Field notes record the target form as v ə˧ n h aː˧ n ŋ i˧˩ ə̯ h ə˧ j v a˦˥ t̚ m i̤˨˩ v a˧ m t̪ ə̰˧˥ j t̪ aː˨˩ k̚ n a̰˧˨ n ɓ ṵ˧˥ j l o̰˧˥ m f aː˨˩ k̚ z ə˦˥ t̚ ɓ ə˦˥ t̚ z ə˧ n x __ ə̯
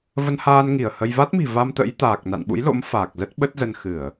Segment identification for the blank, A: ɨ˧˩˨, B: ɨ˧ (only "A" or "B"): A